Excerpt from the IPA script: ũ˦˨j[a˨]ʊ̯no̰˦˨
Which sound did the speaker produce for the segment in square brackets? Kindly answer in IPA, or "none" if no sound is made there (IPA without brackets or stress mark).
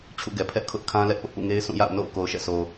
a̰˦˨